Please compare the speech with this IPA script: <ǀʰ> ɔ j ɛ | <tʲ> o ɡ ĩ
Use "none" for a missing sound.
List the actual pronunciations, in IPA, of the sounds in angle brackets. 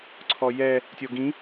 ǀʰ, tʲ

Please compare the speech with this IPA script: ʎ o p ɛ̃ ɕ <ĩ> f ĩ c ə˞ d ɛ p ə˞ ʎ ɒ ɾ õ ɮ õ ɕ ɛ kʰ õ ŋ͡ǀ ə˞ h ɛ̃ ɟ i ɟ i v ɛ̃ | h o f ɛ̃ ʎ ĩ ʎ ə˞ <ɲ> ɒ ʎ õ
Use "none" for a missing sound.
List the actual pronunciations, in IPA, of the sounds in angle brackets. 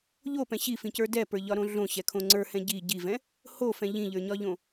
i, ɲ

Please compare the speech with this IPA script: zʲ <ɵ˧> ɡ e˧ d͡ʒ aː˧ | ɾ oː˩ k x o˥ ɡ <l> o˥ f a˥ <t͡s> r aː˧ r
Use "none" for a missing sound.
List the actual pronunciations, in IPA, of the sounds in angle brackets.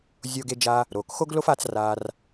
o˧, l, t͡s

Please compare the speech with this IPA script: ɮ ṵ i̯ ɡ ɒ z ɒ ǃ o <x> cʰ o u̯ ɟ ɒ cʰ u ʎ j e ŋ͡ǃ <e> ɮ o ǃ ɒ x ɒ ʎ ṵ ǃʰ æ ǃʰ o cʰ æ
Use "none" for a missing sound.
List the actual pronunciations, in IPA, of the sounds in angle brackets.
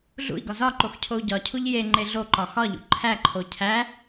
x, e

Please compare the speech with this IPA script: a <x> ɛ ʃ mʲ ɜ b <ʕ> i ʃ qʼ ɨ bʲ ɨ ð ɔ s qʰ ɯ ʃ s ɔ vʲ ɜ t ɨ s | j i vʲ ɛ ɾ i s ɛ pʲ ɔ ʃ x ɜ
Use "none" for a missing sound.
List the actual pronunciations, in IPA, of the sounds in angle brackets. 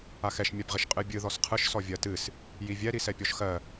x, ʁ

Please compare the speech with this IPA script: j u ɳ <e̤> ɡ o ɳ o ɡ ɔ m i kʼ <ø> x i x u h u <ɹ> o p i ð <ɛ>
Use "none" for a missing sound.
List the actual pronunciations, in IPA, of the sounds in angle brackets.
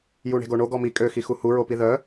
e̤, ø, ɹ, œ

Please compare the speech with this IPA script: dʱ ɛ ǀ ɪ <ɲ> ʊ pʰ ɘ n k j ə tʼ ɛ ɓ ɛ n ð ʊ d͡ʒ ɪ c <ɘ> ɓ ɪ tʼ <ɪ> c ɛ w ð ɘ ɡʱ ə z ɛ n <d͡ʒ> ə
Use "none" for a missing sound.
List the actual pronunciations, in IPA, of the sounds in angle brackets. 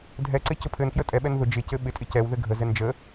c, ɘ, ɪ, d͡ʒ

